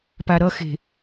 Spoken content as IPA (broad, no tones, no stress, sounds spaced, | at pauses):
p a ɾ ʌ x e̤